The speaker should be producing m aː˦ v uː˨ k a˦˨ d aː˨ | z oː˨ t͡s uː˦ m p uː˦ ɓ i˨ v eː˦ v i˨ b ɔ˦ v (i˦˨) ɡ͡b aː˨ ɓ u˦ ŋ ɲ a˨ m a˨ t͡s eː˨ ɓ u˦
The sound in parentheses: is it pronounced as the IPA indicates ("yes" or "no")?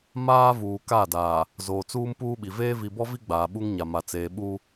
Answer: no